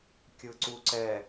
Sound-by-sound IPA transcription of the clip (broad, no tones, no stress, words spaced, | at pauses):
kʲɯǀuǀɛ